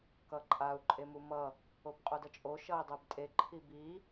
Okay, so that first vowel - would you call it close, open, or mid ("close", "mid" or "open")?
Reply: mid